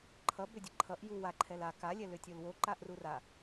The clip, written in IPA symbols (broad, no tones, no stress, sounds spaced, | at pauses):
ǃʰ ʌ b ʏ dʲ ɛ ǃʰ ʌ ʔ j u w a ǃʰ ɛ l a k a lʲ ɛ l ʏ tʲ o l w o ǃ a ʔ r u r a